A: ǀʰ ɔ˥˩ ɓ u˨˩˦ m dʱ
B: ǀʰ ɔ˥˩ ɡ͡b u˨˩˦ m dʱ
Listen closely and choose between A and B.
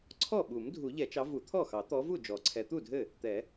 A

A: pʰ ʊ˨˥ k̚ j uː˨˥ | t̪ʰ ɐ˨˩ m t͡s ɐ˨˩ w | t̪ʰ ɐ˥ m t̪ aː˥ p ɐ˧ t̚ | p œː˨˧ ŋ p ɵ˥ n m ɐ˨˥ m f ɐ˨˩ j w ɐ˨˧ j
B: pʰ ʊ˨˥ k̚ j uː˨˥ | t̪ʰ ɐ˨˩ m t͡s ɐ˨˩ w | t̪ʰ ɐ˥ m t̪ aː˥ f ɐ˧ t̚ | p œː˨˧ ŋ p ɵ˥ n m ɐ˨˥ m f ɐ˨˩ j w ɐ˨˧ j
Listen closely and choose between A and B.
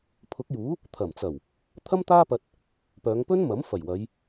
A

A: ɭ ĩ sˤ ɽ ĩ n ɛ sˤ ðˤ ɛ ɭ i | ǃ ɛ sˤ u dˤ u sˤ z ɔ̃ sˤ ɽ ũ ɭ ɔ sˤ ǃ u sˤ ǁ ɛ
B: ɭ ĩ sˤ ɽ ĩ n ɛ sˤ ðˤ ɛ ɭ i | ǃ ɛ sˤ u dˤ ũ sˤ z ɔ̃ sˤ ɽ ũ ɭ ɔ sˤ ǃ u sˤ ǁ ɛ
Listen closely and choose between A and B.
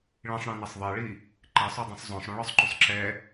B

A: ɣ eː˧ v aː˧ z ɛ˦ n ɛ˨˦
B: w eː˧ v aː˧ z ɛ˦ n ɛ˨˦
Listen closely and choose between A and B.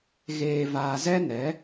A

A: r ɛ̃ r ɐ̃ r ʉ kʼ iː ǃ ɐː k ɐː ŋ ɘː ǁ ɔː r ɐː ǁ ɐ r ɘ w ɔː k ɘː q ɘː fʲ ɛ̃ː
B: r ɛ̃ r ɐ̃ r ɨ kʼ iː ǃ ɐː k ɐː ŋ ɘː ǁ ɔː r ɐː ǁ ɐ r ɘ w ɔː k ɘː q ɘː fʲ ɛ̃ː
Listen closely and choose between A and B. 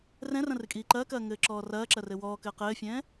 B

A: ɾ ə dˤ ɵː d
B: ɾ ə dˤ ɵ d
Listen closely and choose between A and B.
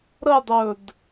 A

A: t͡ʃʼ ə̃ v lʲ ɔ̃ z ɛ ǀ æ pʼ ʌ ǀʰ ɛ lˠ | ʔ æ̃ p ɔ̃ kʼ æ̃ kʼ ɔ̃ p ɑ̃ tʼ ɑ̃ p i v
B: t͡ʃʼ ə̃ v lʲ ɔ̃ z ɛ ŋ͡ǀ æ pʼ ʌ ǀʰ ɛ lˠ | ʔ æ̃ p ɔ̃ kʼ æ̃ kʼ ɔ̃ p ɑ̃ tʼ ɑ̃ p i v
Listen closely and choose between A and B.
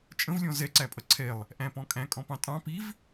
A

